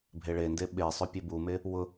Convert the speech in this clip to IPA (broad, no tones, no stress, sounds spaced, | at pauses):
bʱ e ɭ e n d e ɓ e sˤ ɵ pʲ e b u m e | w ʊ